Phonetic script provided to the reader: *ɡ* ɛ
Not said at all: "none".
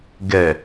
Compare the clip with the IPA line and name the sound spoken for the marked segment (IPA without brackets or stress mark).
ɡ